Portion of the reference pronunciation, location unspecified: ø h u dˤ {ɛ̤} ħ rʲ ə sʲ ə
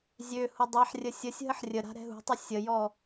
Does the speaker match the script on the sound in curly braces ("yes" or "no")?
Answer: no